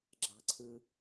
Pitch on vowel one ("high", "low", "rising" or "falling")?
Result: low